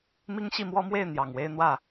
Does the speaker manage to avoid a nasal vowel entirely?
yes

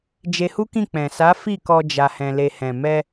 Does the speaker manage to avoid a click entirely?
yes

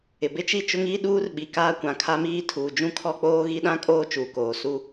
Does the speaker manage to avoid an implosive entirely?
no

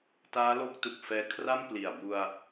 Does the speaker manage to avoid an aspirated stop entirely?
no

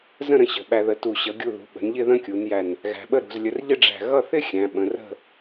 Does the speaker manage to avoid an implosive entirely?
no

